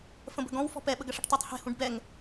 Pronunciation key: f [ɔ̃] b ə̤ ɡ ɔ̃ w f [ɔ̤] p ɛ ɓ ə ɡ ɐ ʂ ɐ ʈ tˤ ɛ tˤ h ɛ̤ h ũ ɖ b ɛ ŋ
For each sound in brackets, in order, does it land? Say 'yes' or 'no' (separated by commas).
no, yes